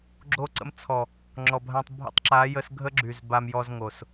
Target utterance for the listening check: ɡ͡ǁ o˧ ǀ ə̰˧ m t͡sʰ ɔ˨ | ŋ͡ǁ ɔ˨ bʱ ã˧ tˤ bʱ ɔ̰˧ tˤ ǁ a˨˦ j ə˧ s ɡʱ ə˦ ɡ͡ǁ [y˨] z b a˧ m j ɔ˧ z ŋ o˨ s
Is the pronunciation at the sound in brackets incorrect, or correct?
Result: correct